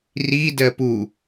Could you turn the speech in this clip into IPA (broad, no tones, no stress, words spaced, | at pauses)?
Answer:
ridɜ pu